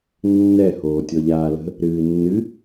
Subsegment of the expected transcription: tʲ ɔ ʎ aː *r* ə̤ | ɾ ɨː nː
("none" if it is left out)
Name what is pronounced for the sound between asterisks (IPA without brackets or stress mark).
l